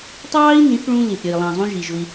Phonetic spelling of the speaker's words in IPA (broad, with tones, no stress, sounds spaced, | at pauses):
tˤ ɑː˦ i̯ n ĩ˨˦ θ ɭ ũ˧ l i˨ θ ɾʲ ɜ˨ i̯ lˠ ɑ̃˨ zˤ ũ˧ ʒ i˨ ʒ ʊ˧ i̯